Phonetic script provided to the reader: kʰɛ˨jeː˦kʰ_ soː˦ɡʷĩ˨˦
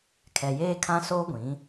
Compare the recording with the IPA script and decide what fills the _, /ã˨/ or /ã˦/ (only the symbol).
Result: ã˦